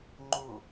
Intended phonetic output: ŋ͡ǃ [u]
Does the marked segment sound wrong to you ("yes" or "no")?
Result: no